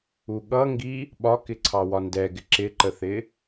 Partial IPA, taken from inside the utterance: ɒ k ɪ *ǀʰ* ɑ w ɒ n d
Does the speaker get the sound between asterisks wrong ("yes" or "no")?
no